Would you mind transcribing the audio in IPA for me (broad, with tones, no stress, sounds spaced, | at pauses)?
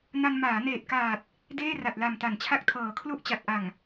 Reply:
n a˧ n m aː˩˦ n eː˨˩ t̚ k aː˨˩ t̚ | d eː˥˩ r a˨˩ t̚ l a˨˩ m t a˩˦ n t͡ɕʰ a˦˥ k̚ tʰ ɤː˨˩ kʰ l u˥˩ ʔ t͡ɕ a˨˩ t̚ ʔ a˨˩ ŋ